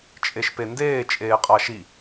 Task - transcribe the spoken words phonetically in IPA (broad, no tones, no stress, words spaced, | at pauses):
t͡ʃʼeʃpendeː t͡ʃʼeːqʼaʃi